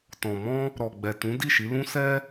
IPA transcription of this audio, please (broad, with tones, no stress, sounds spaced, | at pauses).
t ɔ̃˨ m ɔ̃˧ | ɾ ɔ˨ ɡ͡b ɛ˨ t ũ˨˦ d i˦˨ ʃ i˨˦ l ũ˦ s ɛ˦